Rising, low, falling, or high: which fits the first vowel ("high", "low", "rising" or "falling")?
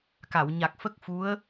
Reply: low